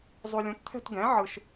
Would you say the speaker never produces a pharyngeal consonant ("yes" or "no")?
no